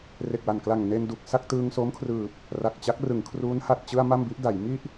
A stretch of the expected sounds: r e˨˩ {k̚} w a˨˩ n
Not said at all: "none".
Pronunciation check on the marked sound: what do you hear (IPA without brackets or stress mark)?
k̚